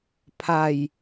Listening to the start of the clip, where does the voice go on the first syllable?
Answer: low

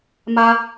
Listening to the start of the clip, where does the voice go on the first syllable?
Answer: high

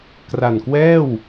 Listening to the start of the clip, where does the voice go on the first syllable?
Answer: low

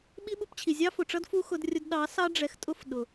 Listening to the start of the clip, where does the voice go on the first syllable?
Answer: high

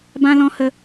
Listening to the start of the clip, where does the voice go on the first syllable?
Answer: high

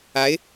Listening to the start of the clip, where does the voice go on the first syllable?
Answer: rising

